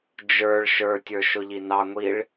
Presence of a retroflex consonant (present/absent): present